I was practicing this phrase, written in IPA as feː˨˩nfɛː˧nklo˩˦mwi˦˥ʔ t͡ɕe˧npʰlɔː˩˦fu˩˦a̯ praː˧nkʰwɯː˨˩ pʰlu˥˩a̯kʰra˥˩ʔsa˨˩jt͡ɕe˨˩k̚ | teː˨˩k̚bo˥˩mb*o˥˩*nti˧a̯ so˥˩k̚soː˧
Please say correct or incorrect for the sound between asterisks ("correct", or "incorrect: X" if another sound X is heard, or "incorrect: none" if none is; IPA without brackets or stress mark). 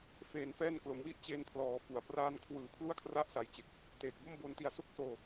incorrect: o˧